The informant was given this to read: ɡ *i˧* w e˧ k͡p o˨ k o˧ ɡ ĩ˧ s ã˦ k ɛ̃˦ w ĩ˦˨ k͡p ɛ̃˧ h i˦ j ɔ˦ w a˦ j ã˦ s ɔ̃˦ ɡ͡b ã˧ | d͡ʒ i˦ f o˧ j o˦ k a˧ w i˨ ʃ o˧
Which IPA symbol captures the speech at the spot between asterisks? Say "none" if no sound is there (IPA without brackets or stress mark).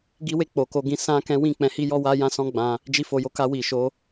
i˧